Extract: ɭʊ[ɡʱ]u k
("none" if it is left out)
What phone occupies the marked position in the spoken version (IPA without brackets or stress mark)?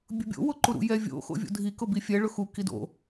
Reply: x